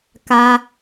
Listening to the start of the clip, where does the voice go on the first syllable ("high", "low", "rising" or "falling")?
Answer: high